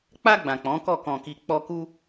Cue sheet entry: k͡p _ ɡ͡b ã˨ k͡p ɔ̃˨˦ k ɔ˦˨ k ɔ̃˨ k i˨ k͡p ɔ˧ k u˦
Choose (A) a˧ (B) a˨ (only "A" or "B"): A